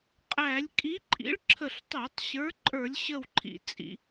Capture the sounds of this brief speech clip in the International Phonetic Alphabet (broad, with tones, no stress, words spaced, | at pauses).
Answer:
qʼæ˧˩˧lʲ kʼi˨˥ǃʼḭ˨˥ɭ ǁʰə˧˩ɬtˤæ˧˩˧tˤ ɕə˞˨˥ǃʼə˞˧˩˧lʲɕə˧˩w ǃʰḭ˩t͡sʼḭ˩